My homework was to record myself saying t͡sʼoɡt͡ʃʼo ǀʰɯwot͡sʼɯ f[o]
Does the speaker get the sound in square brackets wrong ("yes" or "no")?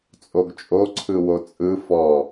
yes